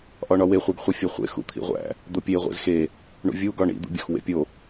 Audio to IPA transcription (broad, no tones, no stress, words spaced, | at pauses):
ʔɒɳɒwe χʷeɡχʷifʲɒχʷḛ xṵt̪ʰḭʁʷæ̰ | d̪opʲe ʁʷḛzxe | ɳṵvʲu ɡɒɳḭ d̪ṵbʲɒxwḛpʲo